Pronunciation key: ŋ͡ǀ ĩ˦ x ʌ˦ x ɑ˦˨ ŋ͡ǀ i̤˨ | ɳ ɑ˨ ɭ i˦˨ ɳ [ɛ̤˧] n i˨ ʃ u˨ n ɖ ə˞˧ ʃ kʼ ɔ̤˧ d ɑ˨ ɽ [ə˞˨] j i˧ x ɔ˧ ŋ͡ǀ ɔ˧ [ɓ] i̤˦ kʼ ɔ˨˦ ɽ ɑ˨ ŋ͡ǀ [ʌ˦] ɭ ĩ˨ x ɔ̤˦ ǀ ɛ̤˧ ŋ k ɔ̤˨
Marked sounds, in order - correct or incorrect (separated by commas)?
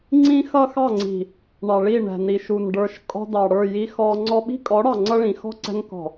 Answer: incorrect, incorrect, correct, correct